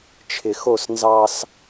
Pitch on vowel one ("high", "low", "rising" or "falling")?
low